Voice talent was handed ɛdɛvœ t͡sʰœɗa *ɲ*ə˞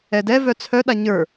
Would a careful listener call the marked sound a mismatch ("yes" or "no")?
no